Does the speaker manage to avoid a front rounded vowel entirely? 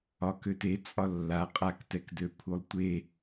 no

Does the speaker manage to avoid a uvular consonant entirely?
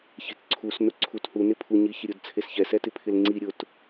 yes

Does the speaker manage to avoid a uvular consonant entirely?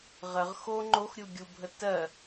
no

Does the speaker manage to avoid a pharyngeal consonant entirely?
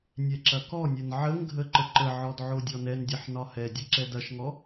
no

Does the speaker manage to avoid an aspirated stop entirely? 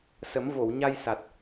yes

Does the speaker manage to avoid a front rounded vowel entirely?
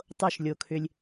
no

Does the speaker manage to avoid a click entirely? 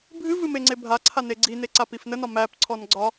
no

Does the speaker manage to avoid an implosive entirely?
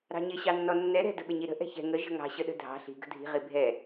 no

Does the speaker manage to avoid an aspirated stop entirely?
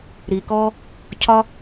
no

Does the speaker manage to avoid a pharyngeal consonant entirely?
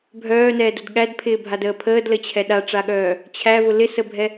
yes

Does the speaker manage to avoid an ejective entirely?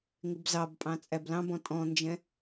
no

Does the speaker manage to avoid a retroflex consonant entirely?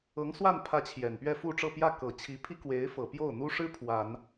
no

